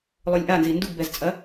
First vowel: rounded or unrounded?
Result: rounded